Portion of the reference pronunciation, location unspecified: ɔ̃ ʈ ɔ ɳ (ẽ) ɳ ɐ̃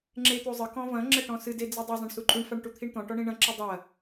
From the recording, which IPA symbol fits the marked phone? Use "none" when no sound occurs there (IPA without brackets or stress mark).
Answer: ĩ